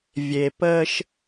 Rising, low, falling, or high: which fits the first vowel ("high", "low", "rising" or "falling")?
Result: low